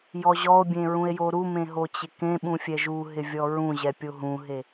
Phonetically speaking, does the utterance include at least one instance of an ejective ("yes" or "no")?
no